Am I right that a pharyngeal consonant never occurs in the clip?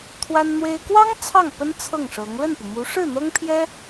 yes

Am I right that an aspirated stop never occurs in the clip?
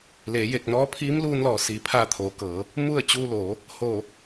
no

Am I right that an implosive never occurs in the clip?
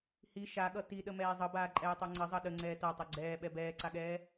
no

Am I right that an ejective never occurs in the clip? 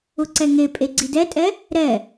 no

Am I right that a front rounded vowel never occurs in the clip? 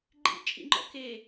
yes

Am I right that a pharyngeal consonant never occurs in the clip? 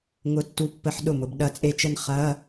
no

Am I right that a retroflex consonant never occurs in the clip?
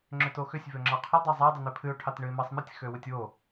no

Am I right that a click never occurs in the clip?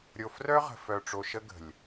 yes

